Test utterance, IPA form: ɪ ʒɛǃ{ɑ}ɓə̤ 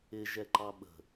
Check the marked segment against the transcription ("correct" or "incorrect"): correct